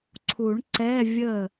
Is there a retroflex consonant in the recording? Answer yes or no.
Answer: yes